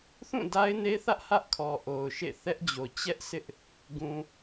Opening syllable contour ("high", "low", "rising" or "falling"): falling